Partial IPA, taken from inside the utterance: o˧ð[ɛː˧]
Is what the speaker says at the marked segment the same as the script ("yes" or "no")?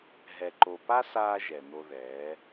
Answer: no